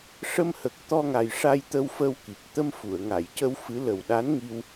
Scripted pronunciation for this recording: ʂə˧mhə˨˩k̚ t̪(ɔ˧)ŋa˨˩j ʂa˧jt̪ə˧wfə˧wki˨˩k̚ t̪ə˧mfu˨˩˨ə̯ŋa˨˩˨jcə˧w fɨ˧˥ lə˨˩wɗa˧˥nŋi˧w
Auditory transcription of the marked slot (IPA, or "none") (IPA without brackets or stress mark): ɔ˧